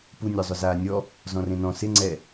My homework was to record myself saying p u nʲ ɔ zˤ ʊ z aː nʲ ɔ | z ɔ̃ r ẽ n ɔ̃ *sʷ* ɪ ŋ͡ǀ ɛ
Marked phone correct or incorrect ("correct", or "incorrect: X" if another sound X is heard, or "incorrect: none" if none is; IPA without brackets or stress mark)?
incorrect: s